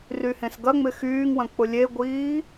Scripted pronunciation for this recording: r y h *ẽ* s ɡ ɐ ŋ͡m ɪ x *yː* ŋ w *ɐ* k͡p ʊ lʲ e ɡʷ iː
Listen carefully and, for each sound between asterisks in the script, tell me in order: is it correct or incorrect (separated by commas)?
correct, correct, incorrect